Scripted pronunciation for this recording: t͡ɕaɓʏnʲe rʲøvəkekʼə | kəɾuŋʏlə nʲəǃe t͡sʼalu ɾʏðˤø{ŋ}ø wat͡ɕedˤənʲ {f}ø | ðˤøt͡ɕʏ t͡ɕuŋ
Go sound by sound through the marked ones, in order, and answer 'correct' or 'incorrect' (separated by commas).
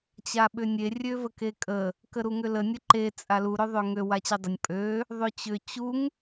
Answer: correct, incorrect